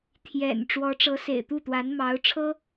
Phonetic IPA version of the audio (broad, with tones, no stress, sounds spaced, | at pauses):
t̪ʰ j ɛ̰˨˩ n ʈ͡ʂ w ɔ˧˥ ʈ͡ʂ ɤ˧˥ s ḛ˨˩ ɪ̯ t̪ u˥˩ t̪ w a˧˥ n m ɑ˧˥ ʊ̯ ʈ͡ʂʰ ɤ˥